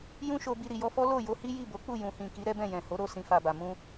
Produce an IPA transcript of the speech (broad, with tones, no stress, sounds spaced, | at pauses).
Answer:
j ũ˧ ʃ o˨ b i˨ ɾ i˨ j ɔ˧ f ɔ˦ l o˦˨ j o˧ h i˦ j i˦˨ b o˨˦ k͡p u˦˨ j ũ˨ h ĩ˨ k i˨˦ ɾ ɛ˦ b ɛ̃˦˨ j ɛ̃˨ h o˨˦ ɾ o˦˨ s ĩ˧ f a˨ b a˨ m ũ˧